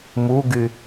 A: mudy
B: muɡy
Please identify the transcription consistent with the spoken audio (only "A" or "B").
B